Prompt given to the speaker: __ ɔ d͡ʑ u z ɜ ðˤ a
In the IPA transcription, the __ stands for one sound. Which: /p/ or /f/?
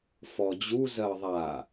f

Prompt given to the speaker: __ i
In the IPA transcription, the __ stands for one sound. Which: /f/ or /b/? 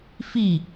f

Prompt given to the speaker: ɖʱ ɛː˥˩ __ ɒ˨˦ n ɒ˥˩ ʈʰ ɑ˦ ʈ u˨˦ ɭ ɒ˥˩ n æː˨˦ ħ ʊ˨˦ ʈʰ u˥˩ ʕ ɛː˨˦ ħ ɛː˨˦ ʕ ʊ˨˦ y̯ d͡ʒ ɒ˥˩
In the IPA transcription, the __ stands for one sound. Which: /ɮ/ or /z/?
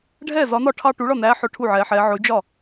z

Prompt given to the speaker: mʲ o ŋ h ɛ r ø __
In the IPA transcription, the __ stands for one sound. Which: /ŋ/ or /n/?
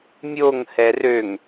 ŋ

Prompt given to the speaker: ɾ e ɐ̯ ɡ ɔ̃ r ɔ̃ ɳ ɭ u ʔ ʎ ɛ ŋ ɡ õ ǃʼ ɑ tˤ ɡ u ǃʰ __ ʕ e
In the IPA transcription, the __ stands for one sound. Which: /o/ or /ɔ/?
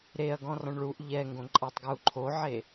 o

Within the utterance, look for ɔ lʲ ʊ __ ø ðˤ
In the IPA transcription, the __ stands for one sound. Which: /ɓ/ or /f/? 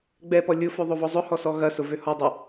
f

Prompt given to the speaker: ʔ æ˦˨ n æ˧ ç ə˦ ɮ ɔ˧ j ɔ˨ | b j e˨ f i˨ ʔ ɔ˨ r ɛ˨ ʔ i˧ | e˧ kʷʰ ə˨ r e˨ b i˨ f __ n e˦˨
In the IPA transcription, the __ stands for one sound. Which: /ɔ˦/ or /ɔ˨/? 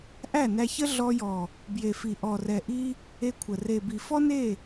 ɔ˦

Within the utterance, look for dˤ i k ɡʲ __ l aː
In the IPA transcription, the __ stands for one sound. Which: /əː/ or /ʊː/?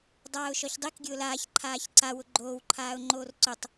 ʊː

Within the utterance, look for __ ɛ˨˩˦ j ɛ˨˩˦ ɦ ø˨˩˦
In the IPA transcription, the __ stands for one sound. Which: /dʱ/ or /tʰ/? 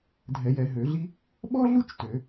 dʱ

